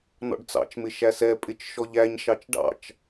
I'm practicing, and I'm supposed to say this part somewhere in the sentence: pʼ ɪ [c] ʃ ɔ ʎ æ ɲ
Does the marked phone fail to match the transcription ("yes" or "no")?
yes